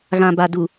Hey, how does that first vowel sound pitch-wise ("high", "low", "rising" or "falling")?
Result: low